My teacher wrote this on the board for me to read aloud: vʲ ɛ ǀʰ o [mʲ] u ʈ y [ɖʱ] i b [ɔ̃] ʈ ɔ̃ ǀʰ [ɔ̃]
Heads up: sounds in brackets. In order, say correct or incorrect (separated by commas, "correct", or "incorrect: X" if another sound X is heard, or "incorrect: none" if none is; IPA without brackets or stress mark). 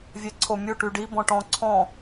correct, incorrect: ɖ, correct, correct